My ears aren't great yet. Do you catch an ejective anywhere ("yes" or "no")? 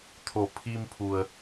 no